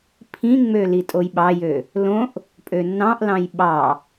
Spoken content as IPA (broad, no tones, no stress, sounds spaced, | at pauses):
pʰ ĩ ŋ͡m ø l i tʼ o j ɓ ɑ j ø | l õ ʔ | pʼ ø nː ɑ̃ ʔ l ɑ̃ j ɓ ɑ